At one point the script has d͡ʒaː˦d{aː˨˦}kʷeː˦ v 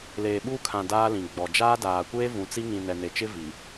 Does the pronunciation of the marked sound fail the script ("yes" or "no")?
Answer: yes